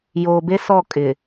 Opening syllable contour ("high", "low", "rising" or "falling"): low